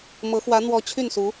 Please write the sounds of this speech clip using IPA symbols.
mɤ˧˥xwä˧˥ n̪wɔ˧˥ t͡ɕʰy˥˩nsu˧˥

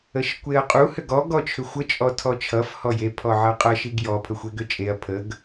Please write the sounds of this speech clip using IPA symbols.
əʃkʷeɐ̯qʼu hʏɡɔ ɡɔt͡ʃʰʏxʷə t͡ʃʼɔtʰɔt͡ʃʰʌf hɔje pʰɔʕʌqʼʌ ʃiɡjɔ pʰəxʷeɡʏt͡ʃʼeɐ̯ pʰəɡ

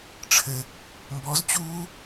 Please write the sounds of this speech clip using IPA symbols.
ʈ͡ʂʰɘ | mbɔz t͡ɕuː

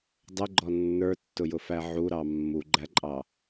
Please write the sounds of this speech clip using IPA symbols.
dˤəɡ͡ǃɔ nːə˞tːʊjʊfæ ʕuɾɑ mːuɡ͡ǃæǃʼɑ

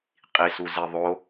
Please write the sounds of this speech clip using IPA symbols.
qʼisuze ðˤo

